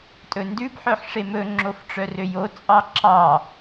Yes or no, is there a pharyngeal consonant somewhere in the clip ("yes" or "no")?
yes